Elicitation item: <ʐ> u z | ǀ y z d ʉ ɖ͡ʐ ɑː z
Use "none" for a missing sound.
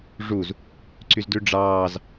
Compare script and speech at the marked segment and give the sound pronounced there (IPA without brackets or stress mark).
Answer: ʐ